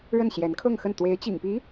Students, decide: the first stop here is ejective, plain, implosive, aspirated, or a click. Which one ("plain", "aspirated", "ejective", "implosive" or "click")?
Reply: aspirated